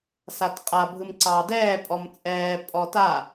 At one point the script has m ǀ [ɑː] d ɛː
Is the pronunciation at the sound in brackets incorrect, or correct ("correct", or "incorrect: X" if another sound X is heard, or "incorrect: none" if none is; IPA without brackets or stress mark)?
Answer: correct